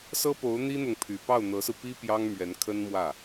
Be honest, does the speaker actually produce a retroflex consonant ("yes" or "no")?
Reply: no